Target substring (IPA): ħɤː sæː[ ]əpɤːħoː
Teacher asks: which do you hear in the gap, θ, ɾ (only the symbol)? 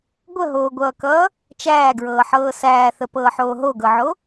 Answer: θ